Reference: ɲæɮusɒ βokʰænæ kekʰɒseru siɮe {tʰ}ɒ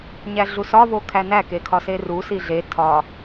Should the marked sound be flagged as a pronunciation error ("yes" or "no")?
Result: no